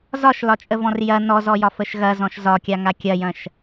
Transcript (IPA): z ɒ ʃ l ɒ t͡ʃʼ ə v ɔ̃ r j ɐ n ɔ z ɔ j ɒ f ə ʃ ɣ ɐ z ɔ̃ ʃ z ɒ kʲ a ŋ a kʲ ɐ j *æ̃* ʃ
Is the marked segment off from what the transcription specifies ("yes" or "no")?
yes